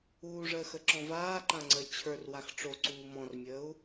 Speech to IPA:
uː ʐ əː x ə ǁ ɔ̃ v aː ǃ ã ŋ͡ǀ əː t͡ɕʰ ə˞ r w a x ʈ͡ʂ o ǀ uː m ɔ̃ r mʲ əː u̯

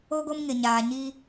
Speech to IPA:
o˦ ɡ o˦ m ŋ ɪ˨ ɲ aː˨ ɲ i˦

